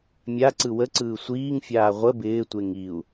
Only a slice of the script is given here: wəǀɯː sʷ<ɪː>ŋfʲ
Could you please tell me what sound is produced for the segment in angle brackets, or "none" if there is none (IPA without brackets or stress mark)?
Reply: iː